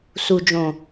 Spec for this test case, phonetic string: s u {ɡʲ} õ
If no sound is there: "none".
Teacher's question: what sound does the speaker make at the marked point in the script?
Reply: d͡ʒ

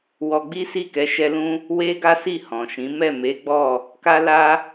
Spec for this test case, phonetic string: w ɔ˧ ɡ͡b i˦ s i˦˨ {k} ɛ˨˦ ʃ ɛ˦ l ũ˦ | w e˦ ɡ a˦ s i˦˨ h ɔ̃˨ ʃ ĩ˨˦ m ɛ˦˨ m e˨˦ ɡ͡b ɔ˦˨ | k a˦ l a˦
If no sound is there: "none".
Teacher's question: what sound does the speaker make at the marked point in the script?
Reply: k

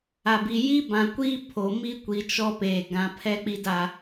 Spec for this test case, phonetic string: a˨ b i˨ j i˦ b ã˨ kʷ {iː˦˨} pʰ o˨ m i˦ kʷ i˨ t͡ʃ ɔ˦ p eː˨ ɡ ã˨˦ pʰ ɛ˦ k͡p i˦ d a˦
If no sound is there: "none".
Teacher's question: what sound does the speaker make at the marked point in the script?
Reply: iː˦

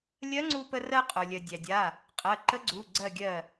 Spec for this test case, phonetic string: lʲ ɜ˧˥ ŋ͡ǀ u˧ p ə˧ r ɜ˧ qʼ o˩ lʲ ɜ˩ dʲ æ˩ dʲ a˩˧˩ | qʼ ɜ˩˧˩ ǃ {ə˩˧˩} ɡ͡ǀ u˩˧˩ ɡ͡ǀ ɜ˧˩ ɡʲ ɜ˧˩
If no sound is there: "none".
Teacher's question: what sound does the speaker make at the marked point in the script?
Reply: ə˧˥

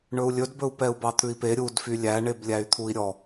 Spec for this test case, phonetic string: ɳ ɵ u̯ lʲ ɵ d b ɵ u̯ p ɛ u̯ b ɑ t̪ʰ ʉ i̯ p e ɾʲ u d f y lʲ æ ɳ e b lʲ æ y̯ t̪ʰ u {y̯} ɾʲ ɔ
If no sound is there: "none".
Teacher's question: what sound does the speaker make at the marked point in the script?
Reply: i̯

